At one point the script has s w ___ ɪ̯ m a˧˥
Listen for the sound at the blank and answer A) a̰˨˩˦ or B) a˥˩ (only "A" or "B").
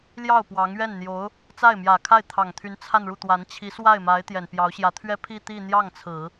B